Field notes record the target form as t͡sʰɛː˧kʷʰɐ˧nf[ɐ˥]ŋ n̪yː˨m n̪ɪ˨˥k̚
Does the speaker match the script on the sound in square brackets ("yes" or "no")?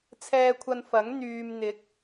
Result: no